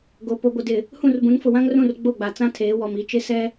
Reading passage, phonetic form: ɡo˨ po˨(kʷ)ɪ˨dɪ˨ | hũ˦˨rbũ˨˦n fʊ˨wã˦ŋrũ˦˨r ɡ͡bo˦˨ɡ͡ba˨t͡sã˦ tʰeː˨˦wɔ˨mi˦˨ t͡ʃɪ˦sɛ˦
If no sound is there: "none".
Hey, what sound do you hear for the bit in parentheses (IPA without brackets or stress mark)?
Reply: ɡʷ